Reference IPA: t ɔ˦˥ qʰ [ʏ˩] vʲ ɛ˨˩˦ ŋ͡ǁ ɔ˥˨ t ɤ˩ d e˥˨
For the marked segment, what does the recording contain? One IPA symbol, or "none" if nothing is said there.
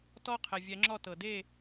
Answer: ɛ˩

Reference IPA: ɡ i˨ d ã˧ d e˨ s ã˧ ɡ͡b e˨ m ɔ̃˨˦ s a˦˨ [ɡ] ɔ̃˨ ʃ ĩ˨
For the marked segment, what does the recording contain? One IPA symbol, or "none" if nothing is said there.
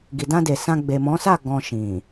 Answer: ɡ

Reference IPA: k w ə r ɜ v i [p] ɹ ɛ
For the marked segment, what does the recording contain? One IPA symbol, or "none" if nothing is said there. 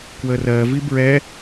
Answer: b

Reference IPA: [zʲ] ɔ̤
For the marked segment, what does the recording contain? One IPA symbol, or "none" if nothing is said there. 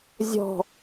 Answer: zʲ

